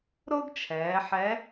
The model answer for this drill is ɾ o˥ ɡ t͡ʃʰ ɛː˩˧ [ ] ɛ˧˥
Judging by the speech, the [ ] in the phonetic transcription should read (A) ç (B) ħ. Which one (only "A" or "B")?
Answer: B